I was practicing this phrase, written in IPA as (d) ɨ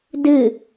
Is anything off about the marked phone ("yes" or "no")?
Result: no